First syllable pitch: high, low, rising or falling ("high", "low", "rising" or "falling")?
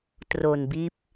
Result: low